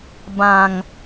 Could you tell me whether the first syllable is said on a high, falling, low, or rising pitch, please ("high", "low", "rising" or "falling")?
low